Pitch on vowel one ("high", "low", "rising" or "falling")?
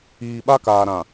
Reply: low